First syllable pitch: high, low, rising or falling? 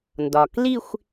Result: low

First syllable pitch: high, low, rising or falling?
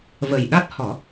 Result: low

